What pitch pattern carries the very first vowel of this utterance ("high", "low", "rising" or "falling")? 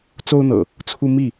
high